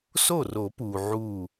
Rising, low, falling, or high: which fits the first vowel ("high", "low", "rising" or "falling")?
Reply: falling